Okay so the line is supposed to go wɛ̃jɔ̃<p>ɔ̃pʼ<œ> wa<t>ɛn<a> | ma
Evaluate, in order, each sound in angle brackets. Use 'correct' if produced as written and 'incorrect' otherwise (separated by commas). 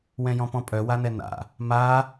correct, correct, incorrect, incorrect